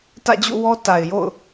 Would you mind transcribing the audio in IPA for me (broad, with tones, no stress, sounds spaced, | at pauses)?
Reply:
t ä̰˦˨ d͡ʑ ṵ˦˨ w ɔ˦ t a˨ ɪ̯ j o̰˦˨ ʊ̯